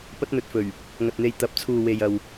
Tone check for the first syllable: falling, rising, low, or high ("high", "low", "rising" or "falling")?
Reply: high